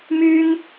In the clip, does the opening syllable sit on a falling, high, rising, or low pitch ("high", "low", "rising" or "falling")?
high